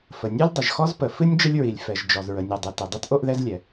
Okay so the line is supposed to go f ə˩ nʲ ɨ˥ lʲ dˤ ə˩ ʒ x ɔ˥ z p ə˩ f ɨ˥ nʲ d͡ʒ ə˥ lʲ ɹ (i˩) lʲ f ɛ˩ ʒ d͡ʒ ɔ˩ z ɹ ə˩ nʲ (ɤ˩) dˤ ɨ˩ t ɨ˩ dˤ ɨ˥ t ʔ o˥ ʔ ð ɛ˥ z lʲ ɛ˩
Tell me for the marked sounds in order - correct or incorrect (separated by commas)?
correct, incorrect